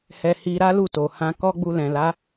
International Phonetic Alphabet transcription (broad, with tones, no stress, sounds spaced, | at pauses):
h ɛ˧ h i˧ ɾ a˦ l u˦˨ t o˨ h ã˧ k ɔ˦ ɡ͡b u˧ l ɛ̃˨ l a˨˦